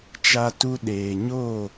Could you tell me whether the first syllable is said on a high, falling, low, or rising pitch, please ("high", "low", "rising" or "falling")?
high